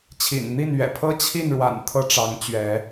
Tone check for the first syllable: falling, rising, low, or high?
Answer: low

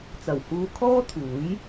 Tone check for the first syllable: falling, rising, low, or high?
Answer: low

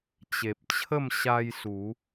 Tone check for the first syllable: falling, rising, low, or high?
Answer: low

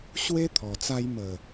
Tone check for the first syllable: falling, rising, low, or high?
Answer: high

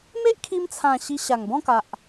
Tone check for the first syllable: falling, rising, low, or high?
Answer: high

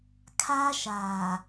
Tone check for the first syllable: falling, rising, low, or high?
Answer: high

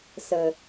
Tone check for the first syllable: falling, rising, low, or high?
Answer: low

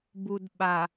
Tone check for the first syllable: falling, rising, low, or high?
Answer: low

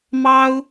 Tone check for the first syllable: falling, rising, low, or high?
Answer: high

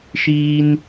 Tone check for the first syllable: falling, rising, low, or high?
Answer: high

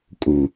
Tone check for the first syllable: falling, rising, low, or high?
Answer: low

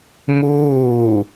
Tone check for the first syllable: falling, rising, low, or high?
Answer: falling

